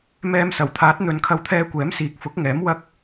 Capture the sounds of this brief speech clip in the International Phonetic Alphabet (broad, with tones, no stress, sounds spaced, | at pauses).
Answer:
m ɛː˨ m s ɐ˨˩ w t̪ʰ aː˨˥ t̚ n̪ ɵ˨ n kʰ ɐ˧ w t̪ʰ ɛː˧ kʷ ɛː˨˥ m s iː˨˥ k̚ f ʊ˨˥ k̚ ŋ ɛː˨˥ m w ɐ˥ k̚